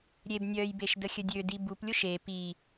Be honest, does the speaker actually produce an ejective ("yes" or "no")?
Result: no